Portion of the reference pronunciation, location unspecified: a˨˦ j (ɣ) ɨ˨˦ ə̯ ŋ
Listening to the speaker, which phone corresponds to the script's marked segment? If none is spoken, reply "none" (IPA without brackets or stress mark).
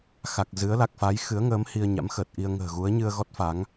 x